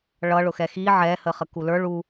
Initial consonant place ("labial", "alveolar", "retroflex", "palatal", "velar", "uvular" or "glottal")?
retroflex